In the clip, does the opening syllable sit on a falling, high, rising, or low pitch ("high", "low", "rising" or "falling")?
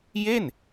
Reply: falling